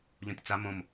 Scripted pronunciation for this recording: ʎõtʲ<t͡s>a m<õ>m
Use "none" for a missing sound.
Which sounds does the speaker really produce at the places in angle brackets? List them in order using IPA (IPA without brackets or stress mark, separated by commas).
t͡s, õ